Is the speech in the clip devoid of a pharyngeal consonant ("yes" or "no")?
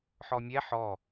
no